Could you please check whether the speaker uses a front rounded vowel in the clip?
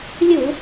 no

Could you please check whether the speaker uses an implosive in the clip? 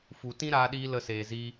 yes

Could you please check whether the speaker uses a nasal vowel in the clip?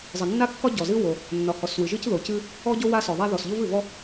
no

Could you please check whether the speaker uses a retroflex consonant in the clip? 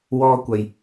no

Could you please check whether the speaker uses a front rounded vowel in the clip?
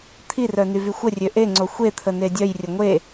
yes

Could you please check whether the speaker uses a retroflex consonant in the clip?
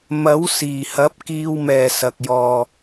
no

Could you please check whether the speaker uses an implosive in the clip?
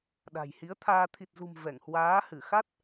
yes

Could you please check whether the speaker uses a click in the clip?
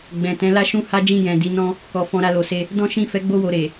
no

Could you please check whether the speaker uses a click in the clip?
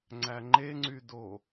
yes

